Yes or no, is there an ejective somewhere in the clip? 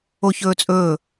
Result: yes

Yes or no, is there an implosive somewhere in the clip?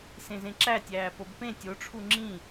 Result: no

